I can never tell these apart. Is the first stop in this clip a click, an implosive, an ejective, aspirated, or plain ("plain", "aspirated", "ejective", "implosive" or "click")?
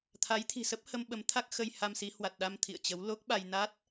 aspirated